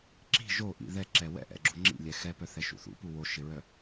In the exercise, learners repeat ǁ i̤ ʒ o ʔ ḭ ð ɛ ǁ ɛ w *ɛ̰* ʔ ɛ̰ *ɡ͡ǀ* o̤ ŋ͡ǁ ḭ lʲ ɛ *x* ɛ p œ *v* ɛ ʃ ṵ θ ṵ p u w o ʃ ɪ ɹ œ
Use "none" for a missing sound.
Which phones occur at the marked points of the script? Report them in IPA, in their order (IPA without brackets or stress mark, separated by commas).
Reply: ɛ̰, ɡ͡ǁ, x, θ